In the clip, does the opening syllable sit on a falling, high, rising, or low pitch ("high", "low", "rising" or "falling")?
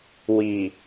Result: low